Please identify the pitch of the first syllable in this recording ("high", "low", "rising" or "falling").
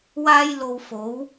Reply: high